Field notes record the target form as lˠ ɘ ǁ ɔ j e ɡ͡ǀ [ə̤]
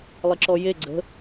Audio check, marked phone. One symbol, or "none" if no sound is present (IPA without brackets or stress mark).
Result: ə̤